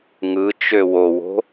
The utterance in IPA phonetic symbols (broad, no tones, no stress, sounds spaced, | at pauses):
ŋ ɯ t͡ʃ ø w o w o̤